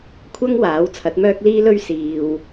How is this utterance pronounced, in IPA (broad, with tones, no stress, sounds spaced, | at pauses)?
kʷʰ ɐ˥ ŋ w aː˨˥ w t͡sʰ ɐ˨˥ t̚ m œː˥ k̚ l iː˥ l ɵ˥ ɥ s iː˧ w